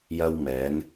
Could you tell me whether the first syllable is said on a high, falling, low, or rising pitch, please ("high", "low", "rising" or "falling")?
high